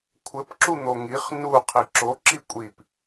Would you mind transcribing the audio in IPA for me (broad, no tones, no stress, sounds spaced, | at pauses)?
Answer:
kʷʰ ɘ p ǁ u n̪ o ŋ i χ n u qʰ i ǁ o ǁ i kʷʼ i p